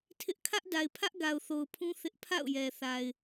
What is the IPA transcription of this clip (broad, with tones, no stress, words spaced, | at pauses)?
tʰɪ˦ʔ kʰä˦ʔda˨ɪ̯pʰä˦ʔ ɡa˨ʊ̯θo˨ʊ̯pʰũ˦ θɪ˦ʔ pʰa̰˦˨ʊ̯jɛ˨ θa˨ɪ̯